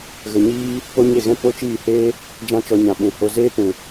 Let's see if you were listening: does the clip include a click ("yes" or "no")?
no